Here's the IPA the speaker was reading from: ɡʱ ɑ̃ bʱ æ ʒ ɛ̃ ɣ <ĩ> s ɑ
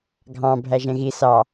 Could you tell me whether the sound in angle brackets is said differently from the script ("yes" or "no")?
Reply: yes